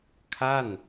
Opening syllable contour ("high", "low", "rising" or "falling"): falling